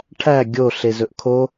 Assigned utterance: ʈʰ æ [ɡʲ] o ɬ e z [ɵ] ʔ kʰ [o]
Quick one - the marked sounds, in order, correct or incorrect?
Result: correct, correct, correct

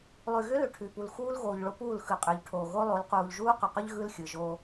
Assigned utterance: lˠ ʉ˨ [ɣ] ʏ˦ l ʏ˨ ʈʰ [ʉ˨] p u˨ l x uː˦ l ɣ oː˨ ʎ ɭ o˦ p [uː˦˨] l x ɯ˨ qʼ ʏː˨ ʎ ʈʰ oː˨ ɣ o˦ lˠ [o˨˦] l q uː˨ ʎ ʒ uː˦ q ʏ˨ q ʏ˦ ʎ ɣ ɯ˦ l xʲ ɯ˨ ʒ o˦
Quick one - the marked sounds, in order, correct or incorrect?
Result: correct, correct, correct, correct

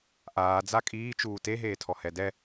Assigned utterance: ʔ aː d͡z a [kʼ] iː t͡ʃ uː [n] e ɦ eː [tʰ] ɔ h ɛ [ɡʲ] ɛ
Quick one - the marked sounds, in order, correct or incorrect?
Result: correct, incorrect: t, correct, incorrect: d

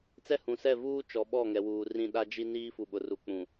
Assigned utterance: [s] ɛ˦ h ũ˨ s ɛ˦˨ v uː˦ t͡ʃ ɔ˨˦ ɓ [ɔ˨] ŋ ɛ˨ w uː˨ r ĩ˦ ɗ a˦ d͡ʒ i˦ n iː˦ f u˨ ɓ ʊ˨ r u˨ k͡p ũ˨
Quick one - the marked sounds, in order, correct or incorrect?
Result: incorrect: t͡s, incorrect: ɔ˦˨

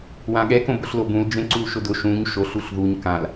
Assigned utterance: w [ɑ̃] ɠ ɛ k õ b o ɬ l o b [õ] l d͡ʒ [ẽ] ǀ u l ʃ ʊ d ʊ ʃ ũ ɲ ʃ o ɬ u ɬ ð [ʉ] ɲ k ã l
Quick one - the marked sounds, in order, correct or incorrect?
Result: incorrect: ã, incorrect: ũ, correct, incorrect: u

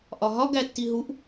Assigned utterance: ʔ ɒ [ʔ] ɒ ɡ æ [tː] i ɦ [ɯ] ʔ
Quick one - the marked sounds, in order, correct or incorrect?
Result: incorrect: ɦ, correct, incorrect: u

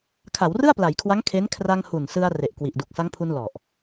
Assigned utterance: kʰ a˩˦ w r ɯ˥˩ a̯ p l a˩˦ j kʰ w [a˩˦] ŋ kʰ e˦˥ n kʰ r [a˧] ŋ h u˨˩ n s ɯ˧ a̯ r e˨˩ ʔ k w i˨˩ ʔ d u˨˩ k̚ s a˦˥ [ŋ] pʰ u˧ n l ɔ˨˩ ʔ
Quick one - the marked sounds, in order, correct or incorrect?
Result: incorrect: a˦˥, correct, correct

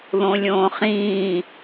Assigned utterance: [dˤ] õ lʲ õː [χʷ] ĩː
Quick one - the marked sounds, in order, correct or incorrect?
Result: incorrect: ð, incorrect: χ

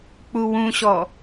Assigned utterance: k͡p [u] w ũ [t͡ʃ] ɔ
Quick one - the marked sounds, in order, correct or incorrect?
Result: correct, incorrect: ɕ

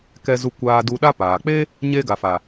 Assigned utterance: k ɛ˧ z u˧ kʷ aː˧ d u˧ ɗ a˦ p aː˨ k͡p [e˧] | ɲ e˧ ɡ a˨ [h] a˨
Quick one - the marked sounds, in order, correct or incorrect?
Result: incorrect: e˦, incorrect: f

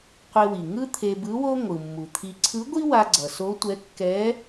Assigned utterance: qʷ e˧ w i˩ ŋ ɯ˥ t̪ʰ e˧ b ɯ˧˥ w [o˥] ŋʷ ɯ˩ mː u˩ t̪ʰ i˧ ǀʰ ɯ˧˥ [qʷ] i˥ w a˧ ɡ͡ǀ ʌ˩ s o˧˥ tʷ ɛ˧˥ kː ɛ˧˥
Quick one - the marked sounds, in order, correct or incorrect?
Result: correct, incorrect: ɡʷ

